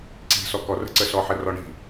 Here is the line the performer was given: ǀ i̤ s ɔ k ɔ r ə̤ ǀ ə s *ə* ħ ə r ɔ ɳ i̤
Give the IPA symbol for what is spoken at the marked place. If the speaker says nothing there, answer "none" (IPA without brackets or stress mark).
ɔ